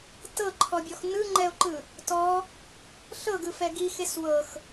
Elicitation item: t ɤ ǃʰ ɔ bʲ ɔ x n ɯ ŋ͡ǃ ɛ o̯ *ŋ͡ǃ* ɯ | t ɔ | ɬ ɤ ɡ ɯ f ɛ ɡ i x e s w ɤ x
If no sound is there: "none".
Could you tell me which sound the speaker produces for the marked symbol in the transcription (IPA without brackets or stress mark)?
ǃ